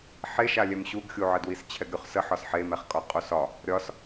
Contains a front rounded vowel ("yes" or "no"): no